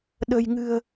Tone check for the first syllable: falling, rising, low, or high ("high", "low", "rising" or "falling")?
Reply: low